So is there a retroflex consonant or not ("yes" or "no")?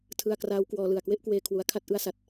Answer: no